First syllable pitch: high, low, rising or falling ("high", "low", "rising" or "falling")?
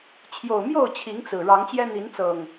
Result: low